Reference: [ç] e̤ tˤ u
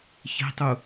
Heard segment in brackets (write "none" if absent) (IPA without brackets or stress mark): ç